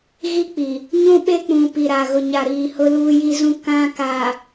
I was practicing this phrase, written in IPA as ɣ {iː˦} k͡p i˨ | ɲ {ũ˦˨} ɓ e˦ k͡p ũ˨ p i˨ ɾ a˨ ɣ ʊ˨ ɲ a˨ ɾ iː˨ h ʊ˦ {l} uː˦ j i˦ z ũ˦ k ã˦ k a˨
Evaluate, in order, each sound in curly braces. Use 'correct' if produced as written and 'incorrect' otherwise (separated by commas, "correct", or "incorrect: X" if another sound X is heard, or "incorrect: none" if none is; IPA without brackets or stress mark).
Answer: incorrect: i˦, incorrect: ũ˦, correct